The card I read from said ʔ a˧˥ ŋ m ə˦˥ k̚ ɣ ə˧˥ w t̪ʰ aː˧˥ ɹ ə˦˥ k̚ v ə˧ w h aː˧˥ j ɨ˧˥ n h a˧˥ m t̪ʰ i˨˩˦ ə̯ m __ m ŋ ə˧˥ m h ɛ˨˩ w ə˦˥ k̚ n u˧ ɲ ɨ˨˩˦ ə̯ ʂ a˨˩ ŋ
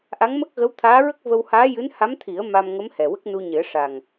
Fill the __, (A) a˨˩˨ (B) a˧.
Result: B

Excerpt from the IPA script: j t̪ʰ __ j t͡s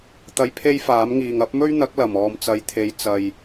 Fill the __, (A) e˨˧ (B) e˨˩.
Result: A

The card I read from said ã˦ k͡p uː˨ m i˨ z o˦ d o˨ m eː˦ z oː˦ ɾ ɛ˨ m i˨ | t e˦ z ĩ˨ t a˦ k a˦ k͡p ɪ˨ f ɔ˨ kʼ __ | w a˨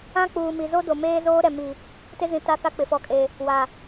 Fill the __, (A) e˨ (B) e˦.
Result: A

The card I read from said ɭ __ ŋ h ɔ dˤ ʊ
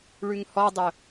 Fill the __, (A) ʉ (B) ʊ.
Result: A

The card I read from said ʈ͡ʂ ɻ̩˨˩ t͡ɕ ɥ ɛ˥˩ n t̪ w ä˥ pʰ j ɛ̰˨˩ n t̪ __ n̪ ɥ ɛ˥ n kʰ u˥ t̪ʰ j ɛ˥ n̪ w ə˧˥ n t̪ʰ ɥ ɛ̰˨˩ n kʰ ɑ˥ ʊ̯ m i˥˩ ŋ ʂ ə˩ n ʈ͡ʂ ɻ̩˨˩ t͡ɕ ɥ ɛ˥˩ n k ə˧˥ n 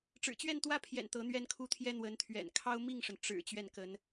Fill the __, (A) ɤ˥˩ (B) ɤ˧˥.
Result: B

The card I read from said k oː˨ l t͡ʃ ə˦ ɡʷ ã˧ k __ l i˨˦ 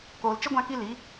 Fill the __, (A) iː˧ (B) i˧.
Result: B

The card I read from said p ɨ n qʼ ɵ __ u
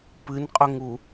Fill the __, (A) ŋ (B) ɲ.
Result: A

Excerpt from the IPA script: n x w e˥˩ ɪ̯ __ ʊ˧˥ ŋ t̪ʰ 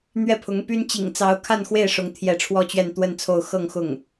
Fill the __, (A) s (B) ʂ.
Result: B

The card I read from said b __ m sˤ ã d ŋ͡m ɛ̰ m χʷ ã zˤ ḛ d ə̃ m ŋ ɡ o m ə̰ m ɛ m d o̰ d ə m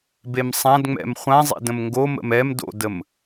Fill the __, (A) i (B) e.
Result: B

